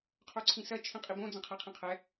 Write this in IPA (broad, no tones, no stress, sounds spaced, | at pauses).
qʰ o ǀʰ ĩ s ɐ t͡ʃʰ ĩ qʼ i b õ d͡z ə̃ qʰ ɛ qʰ ĩ qʰ ɛ